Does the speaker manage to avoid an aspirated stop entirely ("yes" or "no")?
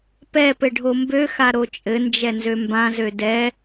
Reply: yes